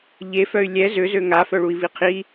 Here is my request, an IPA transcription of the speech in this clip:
ʎ e f œ y̯ lʲ ɛ z ø z ø ŋ a f œ ɭ u i̯ v i qʰ i

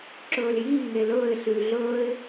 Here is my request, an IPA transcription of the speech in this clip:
ǁ ɵː l j iː ŋ e l ɵː ɪ̯ ɬ y l ɮ ɵː ɪ̯

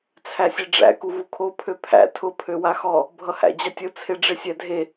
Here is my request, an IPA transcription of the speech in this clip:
t͡sʰ æ sʲ e ɖ͡ʐ æ̰ k u v u kʰ o pʰ ø pʰ æ̰ tʰ ʊ pʰ ø w a x ɔ | bʱ ʌ h æ̰ d͡ʑ a tʲ ʊ t͡sʰ e ɖ͡ʐ e sʲ æ dʱ e

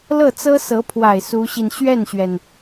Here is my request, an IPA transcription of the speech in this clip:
l ɤ˥˩ t͡s ɤ˥ s ɤ˧˥ pʰ w a˨˩ ɪ̯ s u˧˥ ɕ i˧ n ɕ ɥ ɛ˥˩ n ɕ ɥ ɛ˩ n

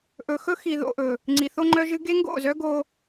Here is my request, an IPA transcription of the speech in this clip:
ʔ ɵ˨ x ɵ˦ x i˨ ð o̰˨ ʔ ɵ˨ | ŋ͡ǀ i˨ θ o˦ ŋ͡ǃ œ˦ ʒ ɨ˦ ɡ e˦ ŋ ɡ o̰˦˨ z œ˦ ɡ o˦

